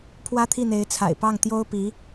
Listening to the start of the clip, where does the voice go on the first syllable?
high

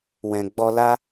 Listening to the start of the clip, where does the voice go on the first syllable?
low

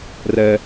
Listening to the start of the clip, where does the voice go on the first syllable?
high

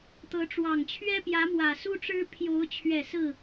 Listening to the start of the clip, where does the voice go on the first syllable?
rising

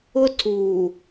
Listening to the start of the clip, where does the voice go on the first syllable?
high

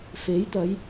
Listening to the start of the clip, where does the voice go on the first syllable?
rising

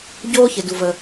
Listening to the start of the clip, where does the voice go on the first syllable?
high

